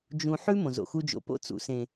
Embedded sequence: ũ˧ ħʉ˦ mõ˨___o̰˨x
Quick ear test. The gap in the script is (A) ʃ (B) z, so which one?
B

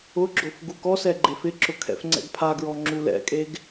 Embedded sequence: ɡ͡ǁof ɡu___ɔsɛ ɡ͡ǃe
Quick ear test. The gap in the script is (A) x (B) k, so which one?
B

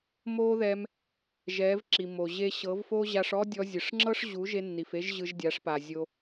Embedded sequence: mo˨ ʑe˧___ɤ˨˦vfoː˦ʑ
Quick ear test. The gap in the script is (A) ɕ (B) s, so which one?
A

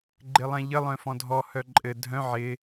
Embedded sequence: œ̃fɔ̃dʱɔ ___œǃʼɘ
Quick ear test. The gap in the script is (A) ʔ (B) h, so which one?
B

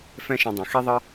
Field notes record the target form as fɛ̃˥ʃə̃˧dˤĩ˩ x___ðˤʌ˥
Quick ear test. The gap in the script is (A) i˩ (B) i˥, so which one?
B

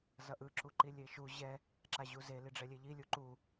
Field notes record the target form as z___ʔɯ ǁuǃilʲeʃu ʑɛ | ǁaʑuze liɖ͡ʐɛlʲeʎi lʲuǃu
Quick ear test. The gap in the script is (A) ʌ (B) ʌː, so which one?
A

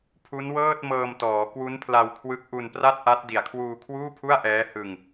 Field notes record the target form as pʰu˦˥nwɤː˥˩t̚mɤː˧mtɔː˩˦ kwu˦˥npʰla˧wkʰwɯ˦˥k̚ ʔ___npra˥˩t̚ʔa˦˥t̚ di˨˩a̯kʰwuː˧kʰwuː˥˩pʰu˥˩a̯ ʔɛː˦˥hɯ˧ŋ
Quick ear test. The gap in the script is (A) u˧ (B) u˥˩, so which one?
A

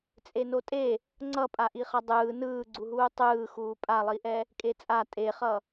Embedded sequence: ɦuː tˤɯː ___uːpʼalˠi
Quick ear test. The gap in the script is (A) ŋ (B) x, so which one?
B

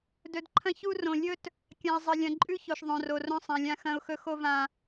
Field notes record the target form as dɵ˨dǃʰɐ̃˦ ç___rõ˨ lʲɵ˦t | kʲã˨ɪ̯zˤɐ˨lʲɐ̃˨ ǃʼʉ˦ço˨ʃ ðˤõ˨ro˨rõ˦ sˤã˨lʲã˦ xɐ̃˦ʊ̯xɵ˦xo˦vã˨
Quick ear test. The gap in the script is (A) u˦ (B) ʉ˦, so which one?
A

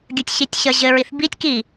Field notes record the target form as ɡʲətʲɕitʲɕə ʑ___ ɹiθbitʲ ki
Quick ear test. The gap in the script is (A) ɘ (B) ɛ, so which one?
A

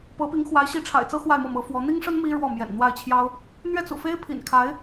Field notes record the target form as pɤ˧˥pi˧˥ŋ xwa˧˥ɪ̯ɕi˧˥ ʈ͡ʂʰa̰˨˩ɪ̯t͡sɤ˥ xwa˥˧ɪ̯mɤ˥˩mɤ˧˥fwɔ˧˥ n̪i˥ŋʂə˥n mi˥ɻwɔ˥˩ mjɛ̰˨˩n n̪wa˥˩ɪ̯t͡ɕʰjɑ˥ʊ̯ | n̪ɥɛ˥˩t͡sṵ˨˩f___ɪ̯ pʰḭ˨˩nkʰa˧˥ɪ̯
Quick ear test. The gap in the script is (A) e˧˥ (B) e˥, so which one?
B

